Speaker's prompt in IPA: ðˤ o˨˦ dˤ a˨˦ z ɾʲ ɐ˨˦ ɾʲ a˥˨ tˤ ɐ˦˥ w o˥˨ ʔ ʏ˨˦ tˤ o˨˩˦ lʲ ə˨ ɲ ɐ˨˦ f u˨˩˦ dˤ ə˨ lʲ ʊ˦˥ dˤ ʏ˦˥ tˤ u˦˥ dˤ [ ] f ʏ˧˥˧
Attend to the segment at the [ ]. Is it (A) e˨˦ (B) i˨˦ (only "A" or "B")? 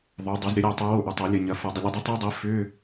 B